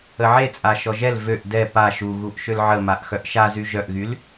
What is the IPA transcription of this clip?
əʕet͡sʼa ʃɔʒɛl vøʔ dɛ pa ʃuɣuʔʃøl ʕəmaʔ xœʔʃazy ʒœʔɣyl

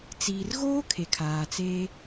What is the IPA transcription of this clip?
t͡siː˨rɣoː˦ kʰe˨kʰaː˨ t͡seː˦

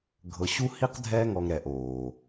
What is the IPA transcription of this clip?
ɡʱɤ˨ɕu˥hi˥q dʱɛ˦ŋɔ˨ŋɾɛ˩ʔ oː˩

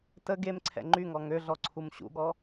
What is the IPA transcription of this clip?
tə ɡemǀʰɛ̰ ŋ͡ǃyŋɔ ŋøɮɔ ǀʰumɕṵɠɔ

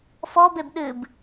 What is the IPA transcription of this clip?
fɔbeb ɗɨb

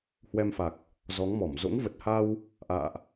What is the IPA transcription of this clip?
hwɛ˧mfa˨˩k̚ | zɔ˨˦ŋmɔ˧˩m zo̰˧˥ŋvə˨˩t̚ha˧w | ʔa̰ː˧˨ʔ

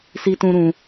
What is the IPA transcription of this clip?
si˦tũ˦ɾũ˧

